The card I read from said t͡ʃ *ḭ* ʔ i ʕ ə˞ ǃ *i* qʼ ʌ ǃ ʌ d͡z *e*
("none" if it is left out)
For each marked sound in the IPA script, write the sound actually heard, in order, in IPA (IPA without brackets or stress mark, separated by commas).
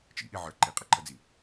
ḭ, i, i